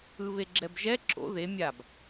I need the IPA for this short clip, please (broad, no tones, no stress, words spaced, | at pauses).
ɯβeɡ͡ǁɛbʒɛ ǁo̰ ðe mʲab